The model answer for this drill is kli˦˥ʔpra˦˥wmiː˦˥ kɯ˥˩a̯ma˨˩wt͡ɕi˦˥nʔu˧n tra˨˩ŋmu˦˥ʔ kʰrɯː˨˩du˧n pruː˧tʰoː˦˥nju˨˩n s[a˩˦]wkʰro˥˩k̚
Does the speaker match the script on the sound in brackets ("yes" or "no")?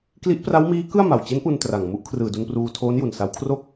yes